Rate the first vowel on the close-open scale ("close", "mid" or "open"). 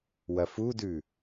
open